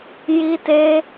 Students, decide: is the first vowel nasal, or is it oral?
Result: oral